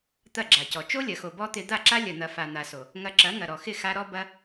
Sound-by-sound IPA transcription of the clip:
t̪ ɐ˦˨ ɡ͡ǁ a˨ c ɔ˨ t͡ʃ o˦ lʲ ɐ˨ x o˨ b ɔ˦ t̪ ɪ˧ d̪ a˦˨ ǁ a˦ lʲ ɐ˨ n̪ ɐ˨ f a˨ n̪ a˨ s o˨ | ŋ ɐ˧ ǁ ɐ˨˦ ŋ ɐ˨ ɾ ɔ˨ x ɪ˦˨ x a˧ ɾ ɔ˦ b ɐ˦

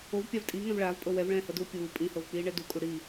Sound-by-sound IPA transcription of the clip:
o v pʲ a v tʼ iː ŋ ɛ̃ v ɭ aː v pʼ ɤ w ɛ v ɭ ɛ̃ː h ɤ d uː pʲ uː pʼ ĩ h ɤ v k͡p iː ɳ ɛ d u kʼ u ɽ i

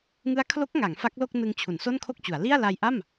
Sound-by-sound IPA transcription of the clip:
ŋ ɯ˦˥ a̯ kʰ l o˦˥ k̚ ŋ a˩˦ ŋ f a˦˥ k̚ l o˥˩ k̚ n ɯ˧ ŋ t͡ɕʰ u˩˦ n s o˥˩ n kʰ o˥˩ k̚ t͡ɕ u˩˦ a̯ l i˥˩ a̯ l a˧ j ʔ a˥˩ m

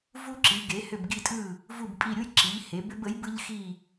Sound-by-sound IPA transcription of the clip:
v u˧ ǁ i˩˧ ɡ e˩˧ h ʏ˧˩ b ɡ i˧˩ tʼ ɯ˧˩ | v u˧˩ b pʼ i˧˩ ɾʲ u˧ j ǁ i˩˧ ʎ h e˩˧ b ʏ˧ b ə˩˥ j b ɯ˧ ʎ x i˧˩

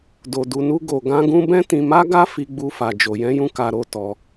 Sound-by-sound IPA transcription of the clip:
d o˧ d u˧ n u˦ ɡ o˧ ɡ ã˦ ɡ ũ˦ b ɛ̃˦ t ĩ˧ m a˦ ɡ a˦ f i˦ ɡ͡b u˦ f a˧ d͡ʒ o˧ j ɛ̃˦ j ũ˦ k a˧ ɾ o˧ t ɔ˧

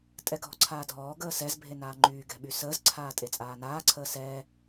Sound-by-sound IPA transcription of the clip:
tʼ ɛ ɡʱ ɔ̤ ǀʰ aː dʱ ɔː ɡ əː s ɛ z bʱ e n aː ŋ͡ǃ yː ɡ ɛ̤ ɓ y s əː z ǀʰ aː tʼ e t͡sʼ aː n aː ǀʰ əː s ɛː

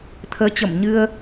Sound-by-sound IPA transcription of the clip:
t̪ʰ əː˨˦ t͡ɕ ə˧˩ m ɲ ɨ˧ ə̯

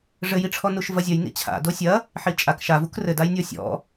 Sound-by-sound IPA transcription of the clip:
ʐ ɘ j i ʈ͡ʂʰ ɔ n u ʃ v ɐ zʲ ɐ j n ḭ t͡ɕʰ a̰ d o sʲ ɐ | ħ i t͡ʃʼ a k ʃ a v u k r ɘ d a j nʲ ɔ sʲ ɔ̰

